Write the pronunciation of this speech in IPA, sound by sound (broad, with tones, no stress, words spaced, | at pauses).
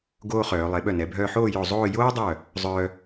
ɡoː˥χœː˩˧ lˠe˩˧ ɓœ˧˩nɛ˩˧ bʱœː˧ħoː˥˧ jo˧˩ zˤoː˥˧ joː˥dˤœ˧˩ | zˤœː˧